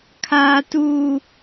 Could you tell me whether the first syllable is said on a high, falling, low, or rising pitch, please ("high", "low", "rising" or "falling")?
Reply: high